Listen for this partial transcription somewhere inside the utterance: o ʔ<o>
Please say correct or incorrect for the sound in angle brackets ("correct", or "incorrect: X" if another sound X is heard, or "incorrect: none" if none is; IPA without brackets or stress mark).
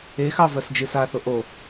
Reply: correct